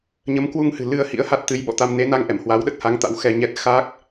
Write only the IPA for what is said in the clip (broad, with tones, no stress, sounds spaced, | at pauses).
ɲ ə˨˦ m k w u˧ ŋ h ɨ̤˨˩ l ɨ˧ ə̯ h ḭ˧˥ ə̯ h a˦˥ t̚ t̪ ɨ˨˦ j ɓ ɔ̰˧˨ t̪ a˧ m n e˨˦ n a˧ ŋ ʔ ɛ˧˩ m h w a˨˦ w ɗ ə˦˥ t̚ h a˨˦ ŋ t̪ a̰˧˥ w x ɛ˧ ɲ ɛ˦˥ t̚ x aː˦˥ k̚